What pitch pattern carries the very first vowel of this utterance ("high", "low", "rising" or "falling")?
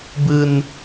high